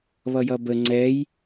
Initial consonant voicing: voiced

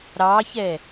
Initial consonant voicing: voiced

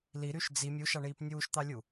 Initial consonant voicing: voiced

